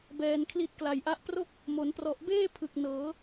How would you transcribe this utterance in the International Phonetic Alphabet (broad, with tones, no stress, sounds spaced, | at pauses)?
b ɛː˧ n kʰ l i˦˥ t̚ k l a˨˩ j ʔ a˦˥ ʔ p r o˥˩ k̚ | m o˩˦ n p r ɔ˨˩ ʔ b eː˥˩ pʰ ɯ˨˩ k̚ n ɤː˩˦